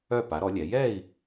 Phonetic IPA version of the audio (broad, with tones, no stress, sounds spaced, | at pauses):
œ˥˧ p a˨˦ ɾ ɔ˨˦ lʲ ɛ˨˦ j ɛ˥˧ i̯